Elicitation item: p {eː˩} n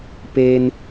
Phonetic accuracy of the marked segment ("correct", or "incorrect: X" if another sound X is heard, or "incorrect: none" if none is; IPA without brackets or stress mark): incorrect: eː˧